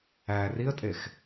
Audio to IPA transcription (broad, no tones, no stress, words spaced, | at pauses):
æ riə̯tʼex